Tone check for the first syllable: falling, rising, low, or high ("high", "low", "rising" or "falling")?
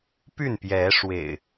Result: falling